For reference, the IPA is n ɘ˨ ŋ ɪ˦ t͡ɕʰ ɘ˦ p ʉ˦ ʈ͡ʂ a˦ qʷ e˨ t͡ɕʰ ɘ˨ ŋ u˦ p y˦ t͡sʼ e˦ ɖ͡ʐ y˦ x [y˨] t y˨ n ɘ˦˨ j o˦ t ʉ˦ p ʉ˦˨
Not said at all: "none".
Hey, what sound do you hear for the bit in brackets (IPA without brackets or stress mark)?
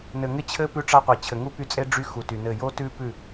u˨